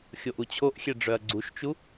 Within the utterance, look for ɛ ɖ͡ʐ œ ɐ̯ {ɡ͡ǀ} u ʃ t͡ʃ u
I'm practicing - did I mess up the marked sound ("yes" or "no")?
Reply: no